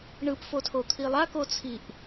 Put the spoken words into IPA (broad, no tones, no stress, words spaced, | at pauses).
ɳɯpfotʰot̪ʰi lˠakot͡sʰiʔ